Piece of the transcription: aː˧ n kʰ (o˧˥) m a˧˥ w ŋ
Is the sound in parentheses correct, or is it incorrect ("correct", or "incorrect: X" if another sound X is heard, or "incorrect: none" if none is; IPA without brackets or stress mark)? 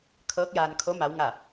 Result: correct